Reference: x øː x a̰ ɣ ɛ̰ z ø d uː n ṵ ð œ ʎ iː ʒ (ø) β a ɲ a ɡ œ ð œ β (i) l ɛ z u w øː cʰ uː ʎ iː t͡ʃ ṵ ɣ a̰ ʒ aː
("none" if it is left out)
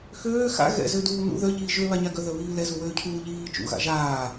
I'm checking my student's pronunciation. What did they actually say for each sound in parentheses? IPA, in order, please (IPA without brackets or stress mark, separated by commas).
ø, iː